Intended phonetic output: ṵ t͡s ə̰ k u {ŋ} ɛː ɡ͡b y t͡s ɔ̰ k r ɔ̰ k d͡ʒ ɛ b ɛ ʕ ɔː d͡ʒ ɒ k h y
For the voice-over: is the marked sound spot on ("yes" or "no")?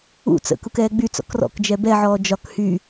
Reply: no